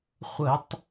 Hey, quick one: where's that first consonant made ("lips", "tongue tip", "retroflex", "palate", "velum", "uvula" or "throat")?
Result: uvula